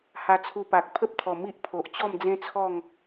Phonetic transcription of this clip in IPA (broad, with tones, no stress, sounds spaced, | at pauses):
h a˧ t͡sʰ u˧ p a˨ k̚ pʰ ə˦ p̚ t̪ʰ ɔ˨˩ m i˦ ʔ pʰ o˨ ʔ t͡ɕ ɔ˥˧ m d͡z ẽ˦ t͡sʰ ɔ˥˧ ŋ